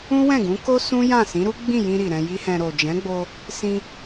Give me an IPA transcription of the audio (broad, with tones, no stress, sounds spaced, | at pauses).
ũ˦ w ɛ̃˦˨ ɡ ũ˨˦ k o˦ s ũ˦ j ã˦˨ s ĩ˨˦ ɾ u˦ ɡ͡b ĩ˦˨ j ĩ˧ ɾ i˨ ɾ ɛ̃˧ j i˦ h ɛ̃˧ ɾ o˨ d͡ʒ ɛ̃˨˦ ɡ͡b o˧ | s ĩ˧